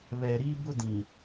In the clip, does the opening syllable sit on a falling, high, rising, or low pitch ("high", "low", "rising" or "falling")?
low